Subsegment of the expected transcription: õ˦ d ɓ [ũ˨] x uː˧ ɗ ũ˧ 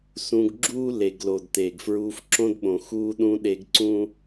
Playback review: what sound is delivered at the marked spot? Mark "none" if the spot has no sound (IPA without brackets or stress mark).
õ˨